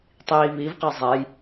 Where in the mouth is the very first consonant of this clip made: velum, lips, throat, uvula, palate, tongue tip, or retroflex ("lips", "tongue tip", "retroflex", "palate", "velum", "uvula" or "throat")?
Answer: tongue tip